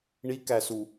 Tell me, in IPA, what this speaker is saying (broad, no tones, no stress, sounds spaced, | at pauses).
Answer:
ɳ i k æ s u